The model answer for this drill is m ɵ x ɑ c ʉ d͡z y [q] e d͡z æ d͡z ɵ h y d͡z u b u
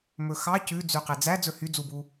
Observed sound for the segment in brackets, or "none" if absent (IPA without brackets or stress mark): q